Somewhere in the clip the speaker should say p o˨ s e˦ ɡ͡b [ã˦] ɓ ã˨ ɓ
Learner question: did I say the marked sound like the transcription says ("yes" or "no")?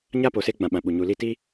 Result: no